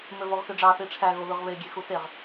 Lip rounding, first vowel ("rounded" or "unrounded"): rounded